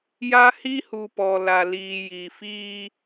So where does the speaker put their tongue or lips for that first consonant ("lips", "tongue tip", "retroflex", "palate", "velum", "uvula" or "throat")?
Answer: palate